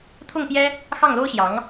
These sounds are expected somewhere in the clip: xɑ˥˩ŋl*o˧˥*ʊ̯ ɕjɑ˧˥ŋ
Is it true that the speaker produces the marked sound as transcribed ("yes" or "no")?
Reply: no